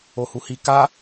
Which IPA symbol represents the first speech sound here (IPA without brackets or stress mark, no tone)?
o